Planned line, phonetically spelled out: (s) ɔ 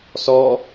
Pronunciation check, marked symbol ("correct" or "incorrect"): correct